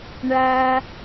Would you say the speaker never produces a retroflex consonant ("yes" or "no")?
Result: no